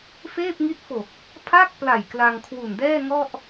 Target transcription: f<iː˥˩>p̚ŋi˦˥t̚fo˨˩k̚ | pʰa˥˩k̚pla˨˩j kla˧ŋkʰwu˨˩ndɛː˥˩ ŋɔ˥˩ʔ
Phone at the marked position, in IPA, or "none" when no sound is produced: eː˥˩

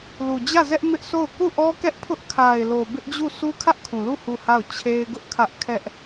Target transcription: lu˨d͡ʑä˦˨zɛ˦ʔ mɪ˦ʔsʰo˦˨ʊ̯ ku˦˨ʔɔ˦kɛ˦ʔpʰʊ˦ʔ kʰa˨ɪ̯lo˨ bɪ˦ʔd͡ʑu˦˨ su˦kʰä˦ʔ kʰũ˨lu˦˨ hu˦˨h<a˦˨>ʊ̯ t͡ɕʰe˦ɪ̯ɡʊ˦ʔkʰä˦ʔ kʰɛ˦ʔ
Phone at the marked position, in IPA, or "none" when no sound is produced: a˦˨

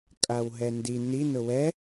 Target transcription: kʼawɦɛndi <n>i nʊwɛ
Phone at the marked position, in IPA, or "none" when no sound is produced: n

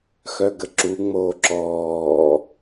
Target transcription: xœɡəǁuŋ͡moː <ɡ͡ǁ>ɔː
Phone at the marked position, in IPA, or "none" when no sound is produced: ǁ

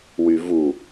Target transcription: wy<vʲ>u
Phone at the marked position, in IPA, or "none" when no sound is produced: v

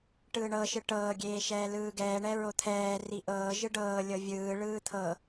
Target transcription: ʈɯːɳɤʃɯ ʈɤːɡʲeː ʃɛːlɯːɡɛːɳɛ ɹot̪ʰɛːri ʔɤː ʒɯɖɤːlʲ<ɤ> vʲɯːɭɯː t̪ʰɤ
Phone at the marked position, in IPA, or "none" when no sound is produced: ɤ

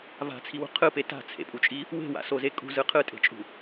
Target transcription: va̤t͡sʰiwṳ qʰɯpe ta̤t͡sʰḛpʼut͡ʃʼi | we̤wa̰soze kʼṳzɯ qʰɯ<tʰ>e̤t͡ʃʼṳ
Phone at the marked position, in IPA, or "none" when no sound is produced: tʼ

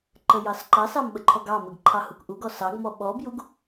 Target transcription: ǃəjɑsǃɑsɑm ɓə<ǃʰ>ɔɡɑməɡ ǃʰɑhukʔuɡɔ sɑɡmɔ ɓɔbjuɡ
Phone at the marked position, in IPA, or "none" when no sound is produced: ǃʰ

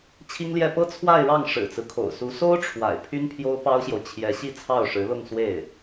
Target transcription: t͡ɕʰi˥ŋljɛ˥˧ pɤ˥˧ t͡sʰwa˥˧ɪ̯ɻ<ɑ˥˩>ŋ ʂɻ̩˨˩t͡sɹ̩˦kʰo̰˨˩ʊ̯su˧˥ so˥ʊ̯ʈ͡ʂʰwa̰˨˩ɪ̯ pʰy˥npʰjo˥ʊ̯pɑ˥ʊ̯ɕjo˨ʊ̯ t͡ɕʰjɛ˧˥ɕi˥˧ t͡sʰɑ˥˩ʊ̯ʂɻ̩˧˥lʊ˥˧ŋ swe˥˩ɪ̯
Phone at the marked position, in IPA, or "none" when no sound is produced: ɑ˥˩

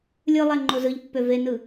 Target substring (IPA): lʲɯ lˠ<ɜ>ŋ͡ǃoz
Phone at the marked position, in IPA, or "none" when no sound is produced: æ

